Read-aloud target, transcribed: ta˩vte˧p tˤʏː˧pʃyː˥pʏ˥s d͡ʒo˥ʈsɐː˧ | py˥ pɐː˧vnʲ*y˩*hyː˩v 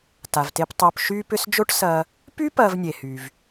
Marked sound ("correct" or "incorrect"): incorrect